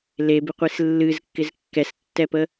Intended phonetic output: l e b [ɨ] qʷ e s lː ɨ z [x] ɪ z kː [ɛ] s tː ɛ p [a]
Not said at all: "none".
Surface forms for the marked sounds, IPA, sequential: ɪ, kː, ɛ, ə

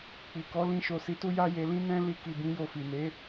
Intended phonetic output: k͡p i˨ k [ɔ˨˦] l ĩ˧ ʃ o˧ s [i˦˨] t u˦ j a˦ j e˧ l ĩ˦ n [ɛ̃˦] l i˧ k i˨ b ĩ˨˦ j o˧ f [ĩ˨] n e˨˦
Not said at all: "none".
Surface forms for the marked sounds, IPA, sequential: ɔ˨˦, i˧, ɛ̃˦, i˨

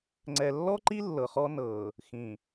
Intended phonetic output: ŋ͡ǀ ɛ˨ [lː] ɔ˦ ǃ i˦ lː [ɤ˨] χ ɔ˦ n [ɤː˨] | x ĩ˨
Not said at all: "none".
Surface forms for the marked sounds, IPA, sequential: lː, ɤ˨, ɤː˨

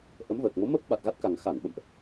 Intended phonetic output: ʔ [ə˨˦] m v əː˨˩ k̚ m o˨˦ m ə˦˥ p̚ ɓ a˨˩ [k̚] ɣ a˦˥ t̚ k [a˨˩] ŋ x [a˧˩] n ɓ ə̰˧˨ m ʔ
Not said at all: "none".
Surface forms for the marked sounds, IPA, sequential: ə˨˦, t̚, a˨˩, a˧˩

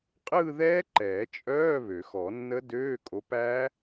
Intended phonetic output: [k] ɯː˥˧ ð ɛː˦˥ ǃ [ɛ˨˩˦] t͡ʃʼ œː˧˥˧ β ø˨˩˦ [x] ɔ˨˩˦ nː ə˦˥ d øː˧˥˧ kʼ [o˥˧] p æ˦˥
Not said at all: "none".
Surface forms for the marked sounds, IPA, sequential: qʼ, ɛː˨˩˦, x, o˨˦

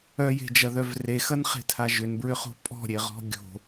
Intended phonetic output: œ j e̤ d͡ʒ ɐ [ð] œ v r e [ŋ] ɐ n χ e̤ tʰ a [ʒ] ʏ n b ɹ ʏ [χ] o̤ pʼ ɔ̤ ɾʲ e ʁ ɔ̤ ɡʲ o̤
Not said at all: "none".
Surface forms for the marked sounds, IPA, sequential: ð, x, ʒ, χ

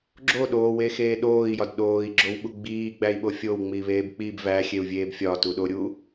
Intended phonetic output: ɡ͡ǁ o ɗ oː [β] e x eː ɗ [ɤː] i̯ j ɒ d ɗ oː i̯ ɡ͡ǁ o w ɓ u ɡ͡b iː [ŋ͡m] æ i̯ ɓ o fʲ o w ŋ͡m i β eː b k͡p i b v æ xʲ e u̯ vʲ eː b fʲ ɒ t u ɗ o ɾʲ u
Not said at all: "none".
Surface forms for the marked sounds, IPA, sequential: w, oː, ɡ͡b

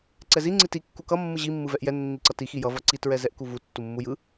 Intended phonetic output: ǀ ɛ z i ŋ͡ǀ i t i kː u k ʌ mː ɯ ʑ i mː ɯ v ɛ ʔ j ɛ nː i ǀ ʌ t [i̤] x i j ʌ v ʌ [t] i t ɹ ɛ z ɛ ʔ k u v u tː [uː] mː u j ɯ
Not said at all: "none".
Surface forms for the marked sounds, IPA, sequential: i, ǀ, u

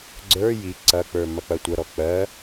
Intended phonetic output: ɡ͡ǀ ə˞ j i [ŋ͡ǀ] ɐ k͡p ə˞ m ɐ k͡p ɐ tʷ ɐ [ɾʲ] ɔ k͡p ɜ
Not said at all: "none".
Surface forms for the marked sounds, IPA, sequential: ǀ, ɾ

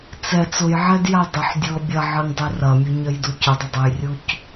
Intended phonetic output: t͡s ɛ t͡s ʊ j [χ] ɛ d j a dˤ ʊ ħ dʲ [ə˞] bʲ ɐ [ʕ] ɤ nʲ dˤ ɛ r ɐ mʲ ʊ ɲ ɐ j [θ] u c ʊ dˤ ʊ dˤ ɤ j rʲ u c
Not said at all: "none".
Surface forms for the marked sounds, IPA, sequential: ʕ, ɤ, ʕ, d

